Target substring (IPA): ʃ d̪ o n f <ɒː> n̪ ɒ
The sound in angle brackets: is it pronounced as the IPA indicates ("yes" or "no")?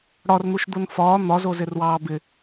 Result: yes